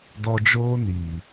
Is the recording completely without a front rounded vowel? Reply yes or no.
yes